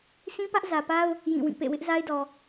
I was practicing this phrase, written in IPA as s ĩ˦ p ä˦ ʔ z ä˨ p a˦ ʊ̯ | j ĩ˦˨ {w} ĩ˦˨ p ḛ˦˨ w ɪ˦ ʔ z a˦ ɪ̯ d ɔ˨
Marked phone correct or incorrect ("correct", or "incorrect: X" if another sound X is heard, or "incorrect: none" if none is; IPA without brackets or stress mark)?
correct